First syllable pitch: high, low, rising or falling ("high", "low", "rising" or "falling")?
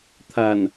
low